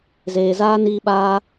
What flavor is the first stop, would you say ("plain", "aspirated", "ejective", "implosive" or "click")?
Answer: implosive